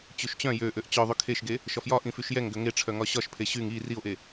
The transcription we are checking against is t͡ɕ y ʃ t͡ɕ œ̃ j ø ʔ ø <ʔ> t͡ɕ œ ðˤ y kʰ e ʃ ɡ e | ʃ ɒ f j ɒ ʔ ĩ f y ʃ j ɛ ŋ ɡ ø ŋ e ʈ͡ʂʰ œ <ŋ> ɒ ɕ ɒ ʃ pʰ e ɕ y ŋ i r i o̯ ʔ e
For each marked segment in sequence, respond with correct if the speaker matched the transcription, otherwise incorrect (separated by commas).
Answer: correct, correct